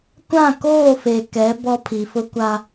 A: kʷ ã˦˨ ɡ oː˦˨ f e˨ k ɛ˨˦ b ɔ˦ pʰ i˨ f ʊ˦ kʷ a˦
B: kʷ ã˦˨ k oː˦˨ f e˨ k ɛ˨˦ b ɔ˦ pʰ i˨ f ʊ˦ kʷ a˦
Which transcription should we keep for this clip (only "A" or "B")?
B